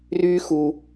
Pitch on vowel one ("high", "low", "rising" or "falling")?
high